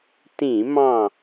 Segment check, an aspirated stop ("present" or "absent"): absent